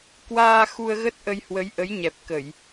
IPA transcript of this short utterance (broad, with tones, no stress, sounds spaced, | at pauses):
k w aː˧ x u˧ ə̯ ɣ ə˦˥ t̚ ʔ ə˧ j h w ə˨˦ j ʔ ə˨˦ j ɲ ɛ˨˩ p̚ k ə˧˩˨ j